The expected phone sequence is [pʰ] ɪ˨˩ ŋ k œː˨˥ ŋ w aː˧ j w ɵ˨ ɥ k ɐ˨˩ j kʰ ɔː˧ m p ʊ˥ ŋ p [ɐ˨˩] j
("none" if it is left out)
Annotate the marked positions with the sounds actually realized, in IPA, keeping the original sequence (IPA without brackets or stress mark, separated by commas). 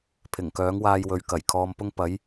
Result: pʰ, ɐ˨˥